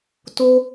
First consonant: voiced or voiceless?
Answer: voiceless